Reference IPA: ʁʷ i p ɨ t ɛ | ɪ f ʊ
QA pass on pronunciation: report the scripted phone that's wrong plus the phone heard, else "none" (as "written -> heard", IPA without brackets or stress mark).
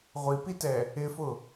ɨ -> i